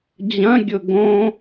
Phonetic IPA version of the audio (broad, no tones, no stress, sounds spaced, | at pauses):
d͡ʑ ɐ̃ ɡʲ ʊ ɡ õ